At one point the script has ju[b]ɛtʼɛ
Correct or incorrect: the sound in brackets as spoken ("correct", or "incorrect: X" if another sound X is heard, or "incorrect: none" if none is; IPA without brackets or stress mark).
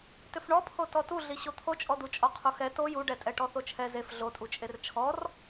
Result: incorrect: ɖ